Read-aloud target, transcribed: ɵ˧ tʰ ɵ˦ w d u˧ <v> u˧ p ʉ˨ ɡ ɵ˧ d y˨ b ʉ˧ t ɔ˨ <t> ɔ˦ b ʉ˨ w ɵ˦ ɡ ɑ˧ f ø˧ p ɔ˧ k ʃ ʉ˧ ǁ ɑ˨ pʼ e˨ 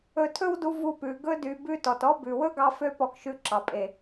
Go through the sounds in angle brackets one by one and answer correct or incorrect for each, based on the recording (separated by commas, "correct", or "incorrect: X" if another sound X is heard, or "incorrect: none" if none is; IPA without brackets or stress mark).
correct, correct